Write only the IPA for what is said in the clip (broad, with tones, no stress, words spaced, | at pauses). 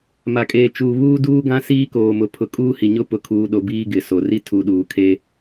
ma˨kʼeː˨ t͡ʃuː˨ βuː˦duː˦ɡã˦ siː˦koː˨mʊ˨ pʰʊ˨kʼuː˦hi˨ɲʊ˦ pʊ˨kʰuː˨ɗo˨ biː˦ɡɪ˨so˨ ri˦ tʰu˨ɗuː˨ kʰe˦